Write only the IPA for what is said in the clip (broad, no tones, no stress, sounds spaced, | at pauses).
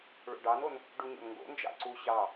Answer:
ɭ o̰ ɖ ɑ n o n | ɖ u ɲ o̰ n ŋ ɡ o̰ n d͡ʒ ɑ̰ ǀ u ɕ ɑ